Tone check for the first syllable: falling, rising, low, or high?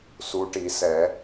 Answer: rising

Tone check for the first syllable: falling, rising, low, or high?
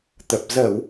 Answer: low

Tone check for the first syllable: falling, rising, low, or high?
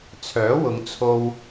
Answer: rising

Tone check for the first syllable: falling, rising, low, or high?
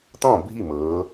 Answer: falling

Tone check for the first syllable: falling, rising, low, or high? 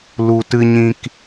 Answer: low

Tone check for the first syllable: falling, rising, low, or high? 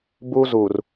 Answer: high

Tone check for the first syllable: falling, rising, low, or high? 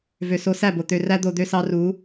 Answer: low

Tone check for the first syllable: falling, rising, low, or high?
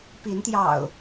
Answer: rising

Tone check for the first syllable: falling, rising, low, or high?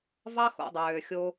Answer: high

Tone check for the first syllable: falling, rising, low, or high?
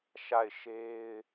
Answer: falling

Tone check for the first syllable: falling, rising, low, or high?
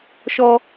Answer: high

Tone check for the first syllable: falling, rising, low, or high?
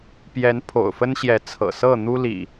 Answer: rising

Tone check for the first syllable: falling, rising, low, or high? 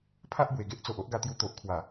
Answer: high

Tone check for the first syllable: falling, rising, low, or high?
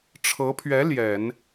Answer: rising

